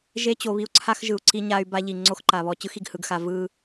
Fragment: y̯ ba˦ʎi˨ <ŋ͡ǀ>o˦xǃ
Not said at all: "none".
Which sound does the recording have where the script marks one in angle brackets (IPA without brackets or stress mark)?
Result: ŋ͡ǀ